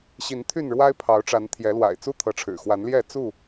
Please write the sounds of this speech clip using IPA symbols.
ɕ i˨˦ n t̪ʰ y˥˨ n ɻ w a˦ ɪ̯ pʰ ɑ˨˦ ʊ̯ ʈ͡ʂ a˨˦ n t̪ʰ j ɛ˨˦ l w a̰˨˩ ɪ̯ t͡s u˦ t̪ʰ ɤ˨˦ ʈ͡ʂʰ ɻ̩˨˩ x w a˨˦ n l j ɛ˥˨ t͡s u˥˨

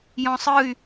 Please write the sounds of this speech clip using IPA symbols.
j ɔ̃ sˤ ɯ y̯

